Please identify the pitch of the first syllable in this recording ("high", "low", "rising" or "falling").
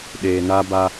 low